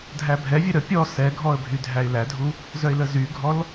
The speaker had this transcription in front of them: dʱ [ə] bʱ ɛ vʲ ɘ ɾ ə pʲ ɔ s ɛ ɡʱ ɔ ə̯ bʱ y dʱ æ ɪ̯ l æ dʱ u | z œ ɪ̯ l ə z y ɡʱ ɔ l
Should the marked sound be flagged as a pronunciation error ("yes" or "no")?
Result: yes